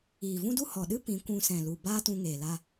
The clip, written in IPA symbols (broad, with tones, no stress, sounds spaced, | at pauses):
iː˨ v ũ˦ d u˦ h ɔ˨ ɗ ɨ˦ p ĩ˨˦ kʷ ũ˧ s ɛ̃˨ l u˨ b aː˦ t ũ˧ ŋ eː˨ l a˧